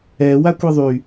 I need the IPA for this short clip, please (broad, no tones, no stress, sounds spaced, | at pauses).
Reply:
ɛ w a kʷ i ðˤ y